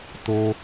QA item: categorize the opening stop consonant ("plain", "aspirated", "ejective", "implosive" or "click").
plain